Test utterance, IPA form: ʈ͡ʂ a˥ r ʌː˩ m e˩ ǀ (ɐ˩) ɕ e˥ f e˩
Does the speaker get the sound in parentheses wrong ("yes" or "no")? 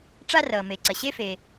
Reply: no